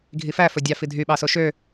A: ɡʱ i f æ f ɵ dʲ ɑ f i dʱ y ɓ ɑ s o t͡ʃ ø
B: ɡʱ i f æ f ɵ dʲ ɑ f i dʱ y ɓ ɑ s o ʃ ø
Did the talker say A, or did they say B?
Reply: B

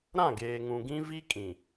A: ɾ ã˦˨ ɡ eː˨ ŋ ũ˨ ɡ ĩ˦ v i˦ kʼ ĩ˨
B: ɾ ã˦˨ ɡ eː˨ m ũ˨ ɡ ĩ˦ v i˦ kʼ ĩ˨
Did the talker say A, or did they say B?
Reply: A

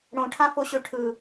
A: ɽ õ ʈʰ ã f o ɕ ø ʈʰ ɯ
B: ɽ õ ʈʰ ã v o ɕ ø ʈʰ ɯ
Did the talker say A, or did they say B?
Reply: A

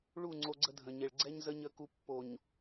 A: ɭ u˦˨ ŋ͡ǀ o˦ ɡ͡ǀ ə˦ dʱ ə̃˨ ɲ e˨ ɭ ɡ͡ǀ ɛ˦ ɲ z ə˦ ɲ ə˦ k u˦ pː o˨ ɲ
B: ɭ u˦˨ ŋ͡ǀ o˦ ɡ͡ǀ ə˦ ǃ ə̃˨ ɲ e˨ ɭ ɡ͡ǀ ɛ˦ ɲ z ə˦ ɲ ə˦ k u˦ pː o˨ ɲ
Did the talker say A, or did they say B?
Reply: A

